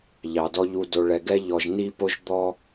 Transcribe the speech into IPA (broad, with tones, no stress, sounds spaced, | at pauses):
ʎ ɑ˨ d ɔ˧ ʎ u˨ d o˨ ɭ ɛ˨ ɡ ɛ˧ ʎ ɔ˧ ʒ n i˦ p o˦ ʒ d̪ ɔ˦